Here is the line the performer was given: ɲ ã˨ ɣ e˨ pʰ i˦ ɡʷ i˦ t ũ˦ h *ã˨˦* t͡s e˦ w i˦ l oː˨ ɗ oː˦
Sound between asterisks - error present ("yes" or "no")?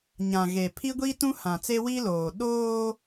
yes